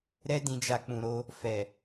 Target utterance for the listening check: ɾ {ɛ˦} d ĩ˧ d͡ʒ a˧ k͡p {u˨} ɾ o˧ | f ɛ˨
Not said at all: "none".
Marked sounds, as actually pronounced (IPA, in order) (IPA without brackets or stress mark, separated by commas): ɛ˦, ũ˨